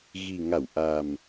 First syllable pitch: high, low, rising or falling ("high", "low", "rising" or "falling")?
low